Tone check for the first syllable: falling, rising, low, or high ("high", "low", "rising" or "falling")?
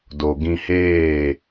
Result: low